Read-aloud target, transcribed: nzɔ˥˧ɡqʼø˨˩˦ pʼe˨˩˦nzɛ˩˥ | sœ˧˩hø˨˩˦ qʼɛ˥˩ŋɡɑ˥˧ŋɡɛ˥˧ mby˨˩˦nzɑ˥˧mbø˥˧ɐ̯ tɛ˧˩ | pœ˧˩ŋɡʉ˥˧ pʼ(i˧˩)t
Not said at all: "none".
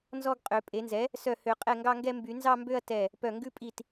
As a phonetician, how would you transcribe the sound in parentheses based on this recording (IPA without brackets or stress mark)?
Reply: i˧˩